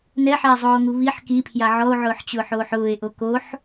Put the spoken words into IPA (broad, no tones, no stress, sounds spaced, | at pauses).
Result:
n ɛ ħ a e̯ zˤ oː ŋ u β i ħ k i pʰ j a ʕ ɔ o̯ ʕ ʊː ħ t͡ɕ ʊː ħ oː ħ ʊː e̯ ʔ o k o ħ